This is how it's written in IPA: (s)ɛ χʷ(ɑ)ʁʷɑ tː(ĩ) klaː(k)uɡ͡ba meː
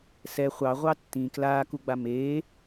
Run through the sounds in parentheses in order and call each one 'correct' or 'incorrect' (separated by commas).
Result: correct, correct, correct, correct